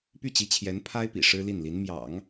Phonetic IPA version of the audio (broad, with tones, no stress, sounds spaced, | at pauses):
p y˥˩ t͡ɕ i˧˥ t͡ɕʰ j ɛ˧˥ n pʰ a˥ ɪ̯ p ḭ˨˩ ʂ ɻ̩˥ l i˥˩ n l i˧˥ n m j ɑ̰˨˩˦ ŋ